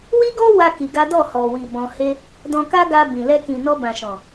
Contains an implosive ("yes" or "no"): no